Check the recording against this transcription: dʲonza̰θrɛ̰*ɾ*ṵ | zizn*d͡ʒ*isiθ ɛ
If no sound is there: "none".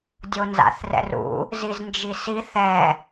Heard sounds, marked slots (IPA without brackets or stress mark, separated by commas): r, d͡ʒ